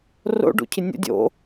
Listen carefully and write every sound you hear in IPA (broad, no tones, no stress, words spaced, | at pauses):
ro̰ɖṵcʰɪ nʲə̰ dʲo̰